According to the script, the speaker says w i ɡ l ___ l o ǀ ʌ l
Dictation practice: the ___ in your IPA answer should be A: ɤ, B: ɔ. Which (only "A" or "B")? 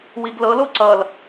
A